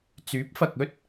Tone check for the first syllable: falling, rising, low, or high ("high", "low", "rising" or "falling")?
rising